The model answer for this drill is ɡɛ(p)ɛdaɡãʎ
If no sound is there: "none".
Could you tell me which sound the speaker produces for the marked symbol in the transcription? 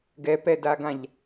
p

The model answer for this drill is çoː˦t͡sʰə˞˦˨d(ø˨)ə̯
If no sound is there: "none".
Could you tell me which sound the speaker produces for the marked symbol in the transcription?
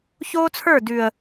ʉ˨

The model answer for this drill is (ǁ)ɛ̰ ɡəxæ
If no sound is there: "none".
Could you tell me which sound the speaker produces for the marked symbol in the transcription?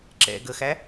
ǁ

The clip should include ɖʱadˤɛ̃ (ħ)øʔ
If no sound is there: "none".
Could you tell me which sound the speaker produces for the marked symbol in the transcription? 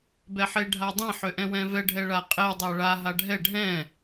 ħ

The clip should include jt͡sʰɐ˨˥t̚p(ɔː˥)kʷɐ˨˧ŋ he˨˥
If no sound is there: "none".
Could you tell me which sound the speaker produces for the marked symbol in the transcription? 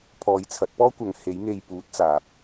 ɔː˥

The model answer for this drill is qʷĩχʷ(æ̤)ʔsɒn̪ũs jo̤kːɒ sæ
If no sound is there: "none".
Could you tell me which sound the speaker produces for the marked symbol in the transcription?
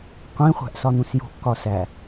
æ̤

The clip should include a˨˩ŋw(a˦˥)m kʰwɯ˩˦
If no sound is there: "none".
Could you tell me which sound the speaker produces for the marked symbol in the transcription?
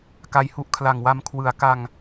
a˧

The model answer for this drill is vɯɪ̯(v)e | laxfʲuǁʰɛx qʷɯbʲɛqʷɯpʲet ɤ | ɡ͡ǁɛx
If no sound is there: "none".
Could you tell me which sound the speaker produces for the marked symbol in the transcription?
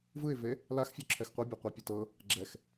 v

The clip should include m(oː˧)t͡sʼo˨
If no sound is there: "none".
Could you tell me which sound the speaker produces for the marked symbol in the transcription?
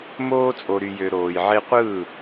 oː˧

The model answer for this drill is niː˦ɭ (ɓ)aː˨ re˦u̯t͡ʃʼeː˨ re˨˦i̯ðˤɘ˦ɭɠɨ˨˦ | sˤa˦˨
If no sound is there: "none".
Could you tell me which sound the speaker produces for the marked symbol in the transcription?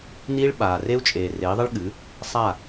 ɓ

